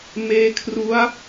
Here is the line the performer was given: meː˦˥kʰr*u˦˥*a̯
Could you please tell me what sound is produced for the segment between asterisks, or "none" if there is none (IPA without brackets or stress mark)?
u˦˥